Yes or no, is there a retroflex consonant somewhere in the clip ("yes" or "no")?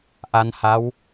no